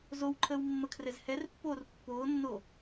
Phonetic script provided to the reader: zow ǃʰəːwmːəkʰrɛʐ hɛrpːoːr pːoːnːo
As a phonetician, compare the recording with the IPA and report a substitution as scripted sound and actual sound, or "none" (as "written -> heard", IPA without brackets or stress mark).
ʐ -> z